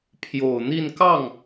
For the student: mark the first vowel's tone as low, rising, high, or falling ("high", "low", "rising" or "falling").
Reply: low